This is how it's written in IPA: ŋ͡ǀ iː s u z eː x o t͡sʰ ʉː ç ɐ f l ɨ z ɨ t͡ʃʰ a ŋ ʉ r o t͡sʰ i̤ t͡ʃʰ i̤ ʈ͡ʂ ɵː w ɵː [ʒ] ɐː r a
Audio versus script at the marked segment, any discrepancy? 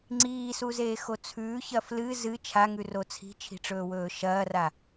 yes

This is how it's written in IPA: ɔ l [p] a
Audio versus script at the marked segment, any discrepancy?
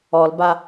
yes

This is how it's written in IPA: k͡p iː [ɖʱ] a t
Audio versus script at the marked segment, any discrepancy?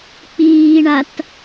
yes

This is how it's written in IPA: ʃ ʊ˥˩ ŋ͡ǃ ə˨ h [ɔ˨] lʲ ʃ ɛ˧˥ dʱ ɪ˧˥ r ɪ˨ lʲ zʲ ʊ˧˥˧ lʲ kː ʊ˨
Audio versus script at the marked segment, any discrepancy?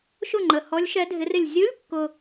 yes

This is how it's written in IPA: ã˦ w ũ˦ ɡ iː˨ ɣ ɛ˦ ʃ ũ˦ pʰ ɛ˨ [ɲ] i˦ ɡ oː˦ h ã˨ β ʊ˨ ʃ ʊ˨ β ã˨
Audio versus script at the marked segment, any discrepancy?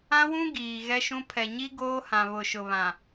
no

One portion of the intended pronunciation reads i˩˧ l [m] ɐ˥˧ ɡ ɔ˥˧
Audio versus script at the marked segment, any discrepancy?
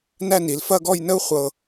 yes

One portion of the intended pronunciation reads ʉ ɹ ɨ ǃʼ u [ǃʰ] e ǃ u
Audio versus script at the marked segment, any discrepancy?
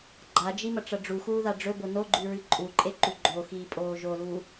yes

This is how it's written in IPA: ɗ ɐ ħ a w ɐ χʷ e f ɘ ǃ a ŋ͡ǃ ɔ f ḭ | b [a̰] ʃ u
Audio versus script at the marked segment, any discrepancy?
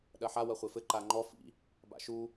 no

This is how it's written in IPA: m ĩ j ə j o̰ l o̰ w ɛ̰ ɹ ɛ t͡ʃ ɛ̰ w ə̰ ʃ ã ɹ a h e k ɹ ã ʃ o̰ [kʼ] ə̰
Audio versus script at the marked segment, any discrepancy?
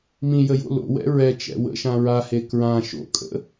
no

